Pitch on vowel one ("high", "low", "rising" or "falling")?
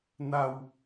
low